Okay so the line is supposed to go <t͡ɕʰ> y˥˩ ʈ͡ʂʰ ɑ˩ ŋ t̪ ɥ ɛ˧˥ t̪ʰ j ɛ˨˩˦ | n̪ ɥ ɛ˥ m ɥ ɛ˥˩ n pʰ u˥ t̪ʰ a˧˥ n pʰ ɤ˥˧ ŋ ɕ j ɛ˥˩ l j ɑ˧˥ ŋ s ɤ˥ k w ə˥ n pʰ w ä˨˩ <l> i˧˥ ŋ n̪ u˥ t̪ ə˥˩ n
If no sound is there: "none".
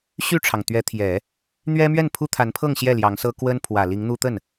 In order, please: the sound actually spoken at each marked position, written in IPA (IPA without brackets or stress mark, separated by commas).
ɕ, l